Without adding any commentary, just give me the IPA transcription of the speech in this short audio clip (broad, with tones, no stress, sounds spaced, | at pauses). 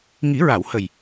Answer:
ŋ i˨˩˦ ɹ a˨˩˨ w h ə˨˩ j